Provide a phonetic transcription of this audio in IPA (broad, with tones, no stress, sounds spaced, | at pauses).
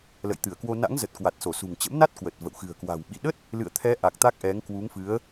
l ə̰˧˨ j t̪ ɨ˧˩ ə̯ k w o˧ n a̰˧˥ ŋ z ə˨˩ t̚ k w a˨˩ t̚ s o˧˩ s ṳ˨˩ ŋ t͡ɕ ə̰˧˥ m n a˦˥ t̚ k w ə˨˩ t̚ v ə̰˧˨ w x ɨ̤˨˩ ə̯ k w a̤˨˩ w ɓ ḭ˧˨ ɗ ə˦˥ t̚ | l ɨ̰˧˨ ə̯ t̪ʰ ɛ˨˦ ʔ a˨˩ k̚ t̪ a˦˥ k̚ ʔ ɛ˨˦ ŋ k w u˨˦ ŋ f ɨ˨˦ ə̯